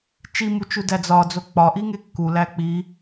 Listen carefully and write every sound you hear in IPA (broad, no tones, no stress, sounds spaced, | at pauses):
t͡ʃ i m u t͡ʃ u d æ d͡z ɒ d͡z o k͡p ɒ ʔ i ŋ e kː u l æ k͡p i